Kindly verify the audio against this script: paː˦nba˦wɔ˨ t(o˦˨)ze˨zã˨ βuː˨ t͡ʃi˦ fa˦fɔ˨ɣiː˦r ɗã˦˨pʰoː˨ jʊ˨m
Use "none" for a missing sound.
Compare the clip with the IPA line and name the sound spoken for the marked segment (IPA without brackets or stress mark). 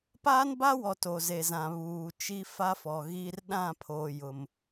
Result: o˨